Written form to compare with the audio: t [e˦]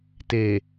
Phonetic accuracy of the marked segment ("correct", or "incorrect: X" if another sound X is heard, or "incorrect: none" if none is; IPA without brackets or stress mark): incorrect: e˨